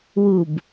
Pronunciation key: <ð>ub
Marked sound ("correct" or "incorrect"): incorrect